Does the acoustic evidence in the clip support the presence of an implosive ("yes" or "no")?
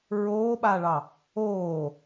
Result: yes